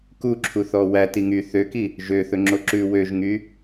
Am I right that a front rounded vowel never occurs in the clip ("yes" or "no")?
no